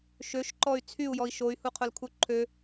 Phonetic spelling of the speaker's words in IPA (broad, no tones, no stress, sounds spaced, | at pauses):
ʃ ø ʃ ǃ ɔ y̯ t͡sʰ y u̯ j ɔ i̯ ʃ o y̯ h u qʰ ʊ l kʰ u ǃʰ ø